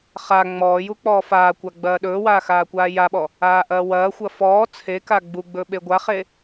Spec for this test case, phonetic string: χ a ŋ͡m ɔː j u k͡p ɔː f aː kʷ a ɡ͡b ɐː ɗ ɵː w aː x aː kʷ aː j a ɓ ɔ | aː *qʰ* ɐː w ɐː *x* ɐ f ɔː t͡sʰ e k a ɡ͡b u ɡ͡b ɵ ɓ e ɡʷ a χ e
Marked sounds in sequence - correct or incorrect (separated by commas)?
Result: incorrect, incorrect